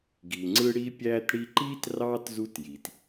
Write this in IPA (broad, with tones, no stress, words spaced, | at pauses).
ɡi˨ŋ͡ǀɯ˥ ɽi˦pʲæː˦tɽi˦ǃiː˥t rɑː˥tzu˦tji˩t